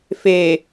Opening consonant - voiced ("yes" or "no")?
no